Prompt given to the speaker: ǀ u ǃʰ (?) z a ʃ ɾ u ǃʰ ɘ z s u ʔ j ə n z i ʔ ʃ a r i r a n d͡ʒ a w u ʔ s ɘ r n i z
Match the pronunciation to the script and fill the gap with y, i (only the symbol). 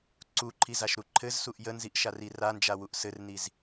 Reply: i